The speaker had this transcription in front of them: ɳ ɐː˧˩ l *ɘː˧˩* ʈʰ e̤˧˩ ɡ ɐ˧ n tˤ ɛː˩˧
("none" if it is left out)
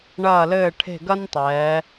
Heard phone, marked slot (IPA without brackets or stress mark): ɘː˧˩